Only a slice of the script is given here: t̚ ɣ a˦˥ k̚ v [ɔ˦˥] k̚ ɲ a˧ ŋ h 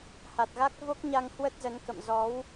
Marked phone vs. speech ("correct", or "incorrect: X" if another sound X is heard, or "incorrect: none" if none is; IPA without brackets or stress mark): incorrect: o˦˥